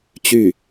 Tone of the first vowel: falling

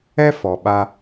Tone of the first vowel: high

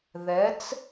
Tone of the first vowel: rising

